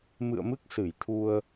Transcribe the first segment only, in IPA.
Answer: m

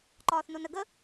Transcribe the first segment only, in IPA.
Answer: ǃ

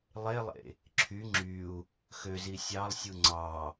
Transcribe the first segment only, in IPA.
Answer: lˠ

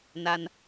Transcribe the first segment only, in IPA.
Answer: n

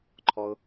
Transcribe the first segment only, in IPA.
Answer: ǃʰ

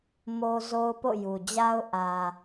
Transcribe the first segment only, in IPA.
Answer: m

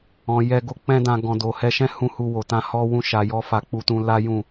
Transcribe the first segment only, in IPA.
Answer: ɔ̃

